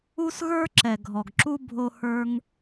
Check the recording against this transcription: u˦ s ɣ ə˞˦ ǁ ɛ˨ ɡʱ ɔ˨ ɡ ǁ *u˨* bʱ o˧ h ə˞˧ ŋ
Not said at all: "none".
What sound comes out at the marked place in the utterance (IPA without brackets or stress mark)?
u˦